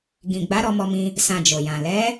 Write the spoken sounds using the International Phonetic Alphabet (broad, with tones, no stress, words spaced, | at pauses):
ɡĩ˨ɡ͡ba˨˦ ɾɔ˧mɔ˧mĩ˧ | sã˧d͡ʒo˨jã˨ lɛ˨˦